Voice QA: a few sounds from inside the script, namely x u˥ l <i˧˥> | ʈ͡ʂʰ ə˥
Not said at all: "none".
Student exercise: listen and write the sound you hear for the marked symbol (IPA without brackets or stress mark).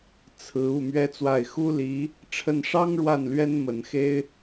i˧˥